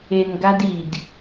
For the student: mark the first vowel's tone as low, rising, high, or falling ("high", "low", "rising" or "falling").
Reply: low